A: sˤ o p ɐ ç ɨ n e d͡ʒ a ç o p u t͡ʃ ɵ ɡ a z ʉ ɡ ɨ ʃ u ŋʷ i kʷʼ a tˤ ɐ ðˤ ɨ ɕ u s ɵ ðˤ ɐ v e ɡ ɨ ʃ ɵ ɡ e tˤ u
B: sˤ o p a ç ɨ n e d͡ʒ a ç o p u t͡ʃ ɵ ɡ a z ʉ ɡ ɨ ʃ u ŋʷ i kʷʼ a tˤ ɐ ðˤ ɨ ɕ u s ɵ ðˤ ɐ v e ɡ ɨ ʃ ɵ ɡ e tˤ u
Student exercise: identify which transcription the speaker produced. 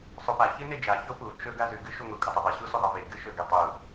B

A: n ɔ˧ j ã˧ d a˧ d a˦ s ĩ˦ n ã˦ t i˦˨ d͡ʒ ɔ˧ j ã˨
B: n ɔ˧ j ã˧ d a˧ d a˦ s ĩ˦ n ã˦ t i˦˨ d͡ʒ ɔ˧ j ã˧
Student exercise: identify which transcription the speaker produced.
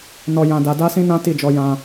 B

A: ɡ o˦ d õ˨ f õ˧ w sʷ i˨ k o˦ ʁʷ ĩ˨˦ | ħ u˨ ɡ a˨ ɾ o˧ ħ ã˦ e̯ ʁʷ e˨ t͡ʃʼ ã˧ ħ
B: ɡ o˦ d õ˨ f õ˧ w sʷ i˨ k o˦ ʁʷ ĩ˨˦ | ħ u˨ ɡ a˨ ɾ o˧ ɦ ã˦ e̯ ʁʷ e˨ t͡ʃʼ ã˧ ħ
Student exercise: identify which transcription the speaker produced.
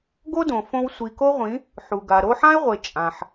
A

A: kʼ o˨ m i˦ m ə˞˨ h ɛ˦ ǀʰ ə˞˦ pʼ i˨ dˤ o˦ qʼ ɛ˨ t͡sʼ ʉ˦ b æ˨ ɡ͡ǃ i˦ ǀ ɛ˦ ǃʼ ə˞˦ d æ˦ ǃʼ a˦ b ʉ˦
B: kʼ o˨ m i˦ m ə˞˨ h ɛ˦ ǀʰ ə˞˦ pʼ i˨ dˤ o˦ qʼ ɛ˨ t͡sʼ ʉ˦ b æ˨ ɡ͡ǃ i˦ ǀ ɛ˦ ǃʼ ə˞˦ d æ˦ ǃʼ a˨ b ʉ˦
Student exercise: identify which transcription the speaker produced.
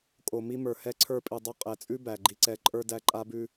A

